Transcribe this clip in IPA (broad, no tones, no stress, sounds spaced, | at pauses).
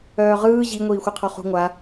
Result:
œː ʁ ɯː ʑ i ŋʷ iː xʷ ɯ qʰ ɔ χ ṳ ŋʷ a